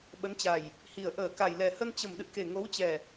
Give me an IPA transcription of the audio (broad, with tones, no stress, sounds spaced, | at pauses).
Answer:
ɓ ə˨˦ n t͡ɕ a˨˩ j | h i˨˩ ə̯ ʔ əː˧˩ k a˨˩ j l ɛ˨˩ h ə˧ n t͡ɕ ə˨˩ m ɗ ɨ̰˧˨ k e˨˩ ŋ o˨˦ w t͡ɕ ɛ˨˩